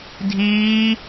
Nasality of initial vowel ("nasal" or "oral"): oral